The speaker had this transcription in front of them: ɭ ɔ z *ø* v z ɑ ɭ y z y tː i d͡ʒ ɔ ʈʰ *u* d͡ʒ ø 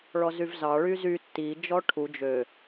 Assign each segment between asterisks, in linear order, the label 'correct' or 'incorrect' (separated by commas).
incorrect, correct